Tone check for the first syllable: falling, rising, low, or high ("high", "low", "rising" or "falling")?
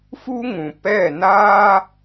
high